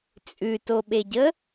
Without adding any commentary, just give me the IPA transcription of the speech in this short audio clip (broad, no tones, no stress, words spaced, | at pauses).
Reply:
t͡sʼʉtoɓeɟə